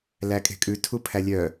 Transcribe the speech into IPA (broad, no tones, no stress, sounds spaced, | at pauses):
l æ kʼ e̤ kʼ ʉ tʰ u pʰ æ lʲ œ